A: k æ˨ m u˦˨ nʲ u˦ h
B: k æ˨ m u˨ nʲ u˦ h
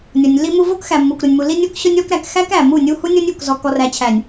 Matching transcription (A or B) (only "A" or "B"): A